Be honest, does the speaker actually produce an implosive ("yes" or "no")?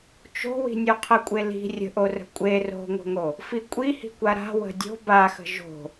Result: no